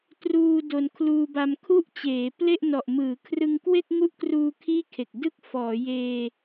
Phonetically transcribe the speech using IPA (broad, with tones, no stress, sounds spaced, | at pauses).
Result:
t r uː˧ d o˧ n kʰ l uː˧ b a˧ m kʰ u˥˩ ʔ t͡ɕ eː˩˦ p l e˥˩ ʔ n ɔ˨˩ ʔ m ɯː˩˦ kʰ r ɯ˧ ŋ k w e˥˩ k̚ ŋ u˥˩ ʔ k r uː˧ kʰ iː˥˩ kʰ e˨˩ k̚ d ɯ˥˩ k̚ f ɔː˩˦ j eː˧